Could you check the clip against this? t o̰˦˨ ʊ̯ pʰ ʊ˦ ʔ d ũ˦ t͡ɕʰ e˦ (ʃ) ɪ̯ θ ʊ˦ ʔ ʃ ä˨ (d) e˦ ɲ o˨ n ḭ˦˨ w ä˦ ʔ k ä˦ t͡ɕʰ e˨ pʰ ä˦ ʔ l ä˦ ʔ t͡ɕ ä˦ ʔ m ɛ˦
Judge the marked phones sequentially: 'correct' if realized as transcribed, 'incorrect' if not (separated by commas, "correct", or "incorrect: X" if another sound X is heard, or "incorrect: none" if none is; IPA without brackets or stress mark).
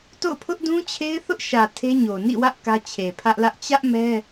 incorrect: none, incorrect: tʰ